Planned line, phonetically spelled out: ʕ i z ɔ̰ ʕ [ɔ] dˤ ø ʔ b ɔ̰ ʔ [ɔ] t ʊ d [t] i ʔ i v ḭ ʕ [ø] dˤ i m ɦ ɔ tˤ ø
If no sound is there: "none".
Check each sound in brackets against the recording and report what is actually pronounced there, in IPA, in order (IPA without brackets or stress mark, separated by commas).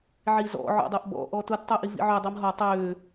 ɔ̰, ɔ, tˤ, ø